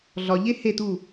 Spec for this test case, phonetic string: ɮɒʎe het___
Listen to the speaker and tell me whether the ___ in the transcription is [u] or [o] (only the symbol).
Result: u